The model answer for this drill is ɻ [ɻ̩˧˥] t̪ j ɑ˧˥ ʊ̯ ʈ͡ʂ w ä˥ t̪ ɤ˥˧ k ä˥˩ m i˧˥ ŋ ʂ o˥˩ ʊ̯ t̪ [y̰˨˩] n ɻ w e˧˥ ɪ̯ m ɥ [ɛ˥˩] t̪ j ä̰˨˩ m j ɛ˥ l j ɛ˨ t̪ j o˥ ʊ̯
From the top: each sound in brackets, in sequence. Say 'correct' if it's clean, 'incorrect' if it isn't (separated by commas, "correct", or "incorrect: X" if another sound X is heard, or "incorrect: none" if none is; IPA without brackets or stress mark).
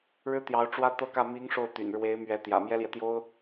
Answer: incorrect: ɻ̩˥, correct, incorrect: ɛ˧˥